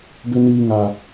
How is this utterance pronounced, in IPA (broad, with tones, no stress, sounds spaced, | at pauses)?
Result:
b ɪ˦ n iː˦ ŋ a˦